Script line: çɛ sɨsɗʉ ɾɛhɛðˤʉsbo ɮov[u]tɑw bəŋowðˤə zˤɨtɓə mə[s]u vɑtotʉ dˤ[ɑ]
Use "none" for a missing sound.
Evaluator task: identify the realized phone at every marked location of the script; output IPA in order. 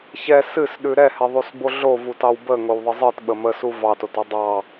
u, s, ɑ

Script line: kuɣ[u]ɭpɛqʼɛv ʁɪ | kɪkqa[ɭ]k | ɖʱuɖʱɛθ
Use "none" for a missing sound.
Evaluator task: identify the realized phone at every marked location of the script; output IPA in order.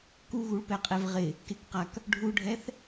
u, none

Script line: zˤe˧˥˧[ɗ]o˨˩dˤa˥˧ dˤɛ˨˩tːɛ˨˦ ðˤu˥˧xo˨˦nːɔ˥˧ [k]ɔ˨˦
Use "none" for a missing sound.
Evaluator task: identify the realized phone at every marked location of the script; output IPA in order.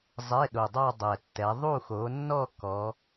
ɗ, k

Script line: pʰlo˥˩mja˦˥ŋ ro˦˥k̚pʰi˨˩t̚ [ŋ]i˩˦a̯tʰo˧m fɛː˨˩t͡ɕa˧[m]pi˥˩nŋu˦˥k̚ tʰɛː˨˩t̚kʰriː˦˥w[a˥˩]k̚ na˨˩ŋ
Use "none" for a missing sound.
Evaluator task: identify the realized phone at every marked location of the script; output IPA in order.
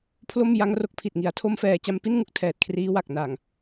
ŋ, m, a˨˩

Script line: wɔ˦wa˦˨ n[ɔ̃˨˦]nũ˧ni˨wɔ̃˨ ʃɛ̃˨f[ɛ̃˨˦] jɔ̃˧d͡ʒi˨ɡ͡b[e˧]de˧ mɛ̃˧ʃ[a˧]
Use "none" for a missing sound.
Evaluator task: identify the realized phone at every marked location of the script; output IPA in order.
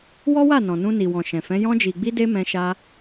ɔ̃˨, ɛ̃˨˦, i˧, a˧

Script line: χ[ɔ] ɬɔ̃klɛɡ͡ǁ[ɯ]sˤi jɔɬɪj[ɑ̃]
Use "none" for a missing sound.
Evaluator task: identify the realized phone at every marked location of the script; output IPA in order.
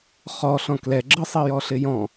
ɔ, ɯ, ɔ̃

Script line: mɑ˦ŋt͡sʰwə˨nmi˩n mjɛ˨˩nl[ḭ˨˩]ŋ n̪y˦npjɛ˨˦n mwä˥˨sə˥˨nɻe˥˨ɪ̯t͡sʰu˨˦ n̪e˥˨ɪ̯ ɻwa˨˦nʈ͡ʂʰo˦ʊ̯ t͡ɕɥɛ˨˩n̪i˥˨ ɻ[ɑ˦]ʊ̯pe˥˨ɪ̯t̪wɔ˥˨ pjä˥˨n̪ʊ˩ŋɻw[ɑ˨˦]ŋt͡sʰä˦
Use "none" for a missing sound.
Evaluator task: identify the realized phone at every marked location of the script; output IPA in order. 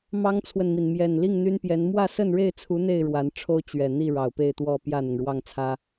i˥˨, ɑ˨˩, ɑ˥˨

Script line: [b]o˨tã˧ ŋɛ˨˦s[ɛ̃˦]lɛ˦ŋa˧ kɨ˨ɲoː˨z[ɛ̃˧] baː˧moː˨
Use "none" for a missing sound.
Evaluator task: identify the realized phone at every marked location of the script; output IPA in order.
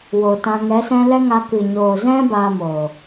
w, ɛ̃˦, ɛ̃˦

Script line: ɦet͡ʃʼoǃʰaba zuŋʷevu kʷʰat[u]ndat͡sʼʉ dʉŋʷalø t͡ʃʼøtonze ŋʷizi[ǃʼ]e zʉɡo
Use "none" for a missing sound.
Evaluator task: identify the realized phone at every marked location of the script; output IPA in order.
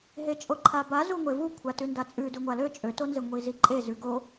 ʉ, ǃʼ

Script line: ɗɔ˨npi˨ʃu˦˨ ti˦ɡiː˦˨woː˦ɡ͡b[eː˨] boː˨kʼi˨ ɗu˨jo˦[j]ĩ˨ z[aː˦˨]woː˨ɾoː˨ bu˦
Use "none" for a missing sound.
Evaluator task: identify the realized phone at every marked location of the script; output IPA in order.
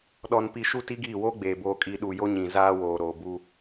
eː˨, ɲ, aː˦

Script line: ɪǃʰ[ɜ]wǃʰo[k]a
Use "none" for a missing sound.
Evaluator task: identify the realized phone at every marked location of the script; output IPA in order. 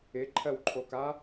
ɜ, k

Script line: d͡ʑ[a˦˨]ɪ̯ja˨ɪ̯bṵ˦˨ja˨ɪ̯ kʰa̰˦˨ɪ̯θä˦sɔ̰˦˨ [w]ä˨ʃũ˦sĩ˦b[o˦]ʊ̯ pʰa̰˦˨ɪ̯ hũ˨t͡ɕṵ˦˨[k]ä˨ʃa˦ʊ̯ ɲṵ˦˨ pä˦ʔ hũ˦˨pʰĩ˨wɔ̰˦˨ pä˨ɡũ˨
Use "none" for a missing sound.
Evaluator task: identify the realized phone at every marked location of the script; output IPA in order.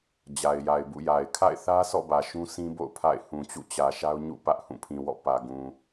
a˨, b, o̰˦˨, t͡ɕ

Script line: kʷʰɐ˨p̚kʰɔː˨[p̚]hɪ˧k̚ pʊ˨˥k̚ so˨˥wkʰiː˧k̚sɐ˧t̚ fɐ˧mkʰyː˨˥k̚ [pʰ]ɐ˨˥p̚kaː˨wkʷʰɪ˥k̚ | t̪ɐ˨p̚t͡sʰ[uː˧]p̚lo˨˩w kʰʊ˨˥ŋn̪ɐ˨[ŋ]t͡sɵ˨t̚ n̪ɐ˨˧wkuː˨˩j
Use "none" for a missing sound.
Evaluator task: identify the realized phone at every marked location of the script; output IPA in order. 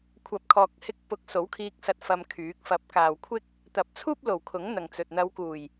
k̚, f, uː˥, ŋ

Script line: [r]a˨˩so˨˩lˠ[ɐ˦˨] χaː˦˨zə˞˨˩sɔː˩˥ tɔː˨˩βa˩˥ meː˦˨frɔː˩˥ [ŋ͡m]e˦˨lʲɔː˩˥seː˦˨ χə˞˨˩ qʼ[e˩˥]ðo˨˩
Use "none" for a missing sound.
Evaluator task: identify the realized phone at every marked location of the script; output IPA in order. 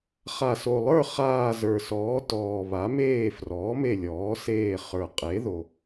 χ, ə˞˦˨, m, e˩˥

